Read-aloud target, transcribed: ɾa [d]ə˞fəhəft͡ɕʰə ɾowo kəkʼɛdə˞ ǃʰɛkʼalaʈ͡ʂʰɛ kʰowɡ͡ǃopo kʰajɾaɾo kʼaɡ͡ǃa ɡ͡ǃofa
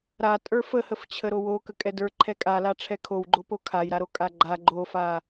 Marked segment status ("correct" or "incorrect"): incorrect